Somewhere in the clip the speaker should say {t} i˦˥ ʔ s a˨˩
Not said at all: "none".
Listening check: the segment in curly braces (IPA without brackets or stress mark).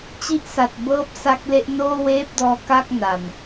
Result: t͡ɕ